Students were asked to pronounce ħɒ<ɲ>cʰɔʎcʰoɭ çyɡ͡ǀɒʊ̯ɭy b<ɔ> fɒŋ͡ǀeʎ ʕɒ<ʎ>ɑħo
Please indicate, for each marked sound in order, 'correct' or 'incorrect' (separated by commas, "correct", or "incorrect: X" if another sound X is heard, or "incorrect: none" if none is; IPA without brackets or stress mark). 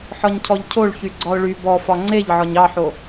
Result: correct, correct, incorrect: ɲ